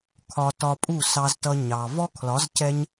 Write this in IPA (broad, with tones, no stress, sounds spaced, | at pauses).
kʰ ɒ˧ t ɒ˧ pʼ u˦˨ s ɑ˨ z t ʌ˨ ɲ ɑ˨ v ɔ˦ kʰ l ɒ˨˦ z c ɛ˦ ɲ